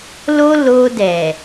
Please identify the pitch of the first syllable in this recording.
high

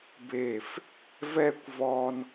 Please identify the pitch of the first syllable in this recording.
falling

